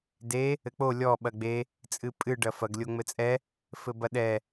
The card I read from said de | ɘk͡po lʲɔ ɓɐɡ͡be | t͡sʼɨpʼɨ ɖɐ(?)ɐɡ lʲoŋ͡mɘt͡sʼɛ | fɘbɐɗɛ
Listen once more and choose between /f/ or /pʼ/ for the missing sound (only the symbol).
f